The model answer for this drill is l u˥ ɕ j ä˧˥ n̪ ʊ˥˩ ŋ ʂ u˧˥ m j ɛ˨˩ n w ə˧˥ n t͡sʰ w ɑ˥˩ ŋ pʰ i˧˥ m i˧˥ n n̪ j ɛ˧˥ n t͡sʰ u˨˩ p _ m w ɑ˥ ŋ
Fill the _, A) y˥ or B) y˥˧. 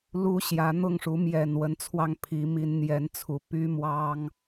A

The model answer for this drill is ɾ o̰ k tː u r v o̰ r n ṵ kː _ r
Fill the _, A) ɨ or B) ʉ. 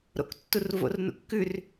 B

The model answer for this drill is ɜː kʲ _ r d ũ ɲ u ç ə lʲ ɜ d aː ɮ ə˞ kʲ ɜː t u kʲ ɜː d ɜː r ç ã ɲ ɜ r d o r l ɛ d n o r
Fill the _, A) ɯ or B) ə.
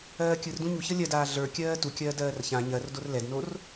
A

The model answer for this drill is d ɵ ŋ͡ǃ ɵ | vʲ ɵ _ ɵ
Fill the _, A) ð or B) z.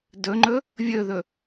A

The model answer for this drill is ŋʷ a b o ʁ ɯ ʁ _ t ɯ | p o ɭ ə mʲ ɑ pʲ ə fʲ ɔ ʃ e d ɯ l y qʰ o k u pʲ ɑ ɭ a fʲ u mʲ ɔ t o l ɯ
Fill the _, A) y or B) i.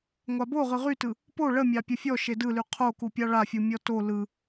A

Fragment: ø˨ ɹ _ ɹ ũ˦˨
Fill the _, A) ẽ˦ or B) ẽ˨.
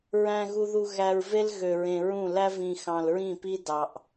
B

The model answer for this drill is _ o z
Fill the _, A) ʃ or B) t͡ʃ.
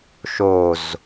A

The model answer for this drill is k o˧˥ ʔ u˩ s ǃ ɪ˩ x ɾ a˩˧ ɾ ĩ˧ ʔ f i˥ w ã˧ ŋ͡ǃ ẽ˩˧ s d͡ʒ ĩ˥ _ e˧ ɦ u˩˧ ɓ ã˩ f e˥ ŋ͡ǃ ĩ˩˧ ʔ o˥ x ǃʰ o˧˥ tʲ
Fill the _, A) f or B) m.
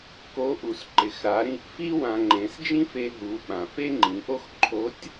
A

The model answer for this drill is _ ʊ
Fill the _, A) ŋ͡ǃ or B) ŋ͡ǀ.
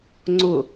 B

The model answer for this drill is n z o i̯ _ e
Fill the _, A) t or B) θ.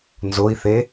B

